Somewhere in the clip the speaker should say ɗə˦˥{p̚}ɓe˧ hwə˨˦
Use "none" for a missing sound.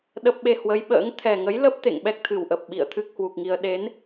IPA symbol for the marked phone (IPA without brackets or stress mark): p̚